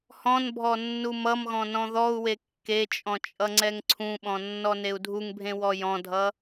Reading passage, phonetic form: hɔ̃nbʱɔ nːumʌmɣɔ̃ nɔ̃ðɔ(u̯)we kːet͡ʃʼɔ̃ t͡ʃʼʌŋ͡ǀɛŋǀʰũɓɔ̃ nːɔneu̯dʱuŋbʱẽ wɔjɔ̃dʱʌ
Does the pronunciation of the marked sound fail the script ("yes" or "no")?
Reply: no